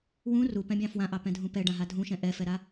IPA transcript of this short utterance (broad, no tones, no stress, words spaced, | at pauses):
wũ rupɛ̃bʲɑ̃ fwãʔɑpɛ̃dʱũ pɛɖãɦa dʱũʃɛ̃ ʔɛfɛɾa